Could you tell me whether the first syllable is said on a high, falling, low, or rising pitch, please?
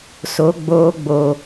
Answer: rising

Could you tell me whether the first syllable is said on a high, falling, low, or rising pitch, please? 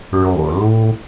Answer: low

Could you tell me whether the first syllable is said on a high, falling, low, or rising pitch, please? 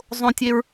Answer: high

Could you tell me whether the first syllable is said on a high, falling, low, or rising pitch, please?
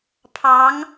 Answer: rising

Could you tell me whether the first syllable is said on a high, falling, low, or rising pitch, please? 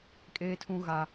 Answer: high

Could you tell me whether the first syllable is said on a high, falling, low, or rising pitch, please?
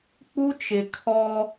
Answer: high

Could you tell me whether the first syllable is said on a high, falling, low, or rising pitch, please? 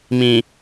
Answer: low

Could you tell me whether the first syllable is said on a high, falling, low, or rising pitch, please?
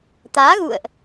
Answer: rising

